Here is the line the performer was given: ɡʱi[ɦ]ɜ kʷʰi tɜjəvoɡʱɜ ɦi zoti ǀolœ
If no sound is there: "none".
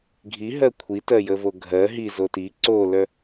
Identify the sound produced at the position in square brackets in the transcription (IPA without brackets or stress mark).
ɦ